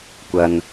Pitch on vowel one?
low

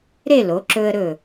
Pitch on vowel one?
falling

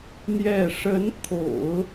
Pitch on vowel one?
falling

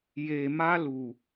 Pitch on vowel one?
low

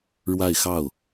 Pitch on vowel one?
falling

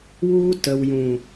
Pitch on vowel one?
high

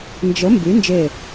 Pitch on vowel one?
rising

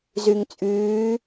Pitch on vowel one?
low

